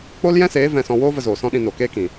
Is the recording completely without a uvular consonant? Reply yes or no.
yes